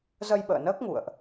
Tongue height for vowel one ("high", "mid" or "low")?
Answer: mid